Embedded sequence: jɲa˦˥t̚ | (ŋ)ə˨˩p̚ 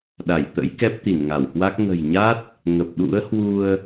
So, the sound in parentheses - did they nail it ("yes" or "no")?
yes